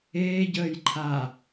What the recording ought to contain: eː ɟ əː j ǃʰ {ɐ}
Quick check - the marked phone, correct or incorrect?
incorrect: a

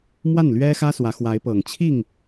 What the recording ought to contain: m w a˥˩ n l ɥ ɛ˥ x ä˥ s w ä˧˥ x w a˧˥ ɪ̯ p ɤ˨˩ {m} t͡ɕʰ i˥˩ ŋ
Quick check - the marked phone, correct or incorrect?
incorrect: ŋ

